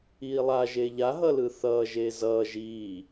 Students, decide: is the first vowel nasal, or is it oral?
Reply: oral